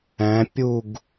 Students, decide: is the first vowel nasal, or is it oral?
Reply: nasal